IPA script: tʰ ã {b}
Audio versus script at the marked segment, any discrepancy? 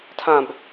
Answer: no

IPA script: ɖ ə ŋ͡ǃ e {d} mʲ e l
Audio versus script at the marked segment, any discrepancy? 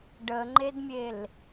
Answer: no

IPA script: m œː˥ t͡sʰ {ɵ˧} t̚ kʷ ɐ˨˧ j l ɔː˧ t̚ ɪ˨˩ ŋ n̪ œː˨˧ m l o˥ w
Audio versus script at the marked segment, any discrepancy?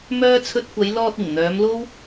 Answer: no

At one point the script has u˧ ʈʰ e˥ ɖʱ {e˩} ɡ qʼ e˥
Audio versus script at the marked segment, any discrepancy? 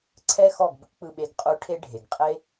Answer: no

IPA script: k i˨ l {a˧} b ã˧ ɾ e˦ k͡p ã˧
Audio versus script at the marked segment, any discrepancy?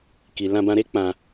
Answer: yes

